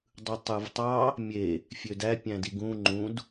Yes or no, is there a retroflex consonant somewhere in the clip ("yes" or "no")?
no